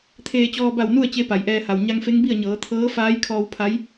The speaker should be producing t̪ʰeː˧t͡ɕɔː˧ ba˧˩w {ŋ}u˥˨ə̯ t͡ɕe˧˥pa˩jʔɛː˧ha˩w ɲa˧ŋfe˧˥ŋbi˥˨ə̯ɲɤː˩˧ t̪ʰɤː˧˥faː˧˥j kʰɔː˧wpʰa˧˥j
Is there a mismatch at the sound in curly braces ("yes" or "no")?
yes